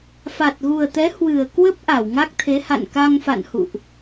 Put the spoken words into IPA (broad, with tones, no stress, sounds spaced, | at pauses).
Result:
f a˨˩ t̚ ɣ u˨˩ ə̯ t̪ ɛ˨˦ h w ɨ˨˩ ə̯ k w ə˦˥ p̚ ʔ a˧˩ w ŋ a˦˥ k̚ t̪ʰ e˨˦ h a̰˧˨ n k a˧ ŋ f a̰˧˨ n h ṵ˧˨ ʔ